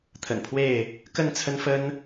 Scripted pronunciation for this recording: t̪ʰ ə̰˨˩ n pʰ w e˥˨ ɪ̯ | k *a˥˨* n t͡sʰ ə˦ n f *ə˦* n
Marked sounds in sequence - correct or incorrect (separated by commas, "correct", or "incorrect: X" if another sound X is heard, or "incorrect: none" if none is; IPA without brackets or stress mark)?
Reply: incorrect: ə˥˨, correct